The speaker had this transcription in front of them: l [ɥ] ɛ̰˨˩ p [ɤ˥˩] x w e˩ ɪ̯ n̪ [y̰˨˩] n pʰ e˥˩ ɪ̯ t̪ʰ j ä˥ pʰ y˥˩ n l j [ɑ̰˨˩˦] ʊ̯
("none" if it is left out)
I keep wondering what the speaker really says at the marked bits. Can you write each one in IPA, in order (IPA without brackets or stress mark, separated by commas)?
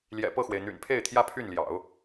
j, ɤ˥˩, y̰˨˩, ɑ̰˨˩˦